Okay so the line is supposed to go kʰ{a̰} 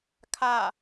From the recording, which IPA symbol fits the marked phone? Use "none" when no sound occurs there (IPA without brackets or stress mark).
a